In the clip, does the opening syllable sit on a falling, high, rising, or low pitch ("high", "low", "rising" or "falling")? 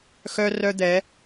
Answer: high